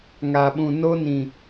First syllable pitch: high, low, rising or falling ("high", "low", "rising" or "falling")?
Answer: low